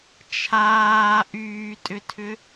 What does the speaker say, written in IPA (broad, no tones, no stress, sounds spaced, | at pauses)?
t͡ʃʰ aː ʔ yː tʼ ʏ tʰ ʏ